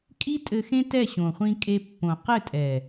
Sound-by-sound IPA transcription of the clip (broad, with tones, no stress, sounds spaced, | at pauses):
kʼ i˦ tʼ ɘ˧ x ẽ˦ t ɛ˦˨ ɕ õ˨ χʷ ĩ˧ kʼ e˧ pː õ˨ q ɘ˦˨ tʼ ɛ˨